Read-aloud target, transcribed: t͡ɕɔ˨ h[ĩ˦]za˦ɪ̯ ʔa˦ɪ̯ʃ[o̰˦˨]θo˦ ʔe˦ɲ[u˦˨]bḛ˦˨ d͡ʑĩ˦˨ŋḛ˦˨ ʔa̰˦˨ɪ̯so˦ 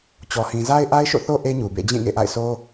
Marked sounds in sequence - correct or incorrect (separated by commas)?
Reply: incorrect, correct, incorrect